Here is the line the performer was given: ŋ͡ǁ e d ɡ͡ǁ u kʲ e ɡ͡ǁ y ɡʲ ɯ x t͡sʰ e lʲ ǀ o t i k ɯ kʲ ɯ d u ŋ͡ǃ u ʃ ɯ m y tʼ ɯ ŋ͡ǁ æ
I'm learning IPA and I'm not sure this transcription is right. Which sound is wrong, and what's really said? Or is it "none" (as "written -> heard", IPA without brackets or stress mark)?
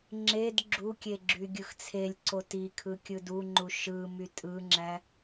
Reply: k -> kʰ